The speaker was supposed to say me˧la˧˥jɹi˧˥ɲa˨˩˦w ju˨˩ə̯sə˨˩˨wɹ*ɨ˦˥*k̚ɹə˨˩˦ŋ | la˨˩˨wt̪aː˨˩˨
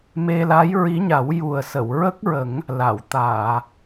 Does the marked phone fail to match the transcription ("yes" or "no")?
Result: yes